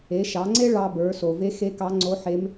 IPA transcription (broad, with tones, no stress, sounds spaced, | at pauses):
e˩˧ ʃ ɑ˩˧ ŋ͡ǀ e˥ ɭ ɑ˧ b ə˞˩˧ s o˩ v e˧˥ x e˧˥ k ɑ˧˥ ŋ͡ǀ o˧˥ ħ e˧˥ m